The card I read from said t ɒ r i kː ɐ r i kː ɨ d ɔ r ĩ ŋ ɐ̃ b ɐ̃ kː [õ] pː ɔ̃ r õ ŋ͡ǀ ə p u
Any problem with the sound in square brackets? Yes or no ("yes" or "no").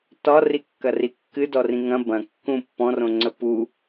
yes